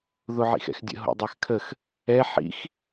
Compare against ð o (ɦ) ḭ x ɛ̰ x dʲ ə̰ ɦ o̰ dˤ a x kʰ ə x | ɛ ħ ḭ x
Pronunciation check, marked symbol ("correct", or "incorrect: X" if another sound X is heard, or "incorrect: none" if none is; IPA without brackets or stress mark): incorrect: ʕ